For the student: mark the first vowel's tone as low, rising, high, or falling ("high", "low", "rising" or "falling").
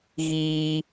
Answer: high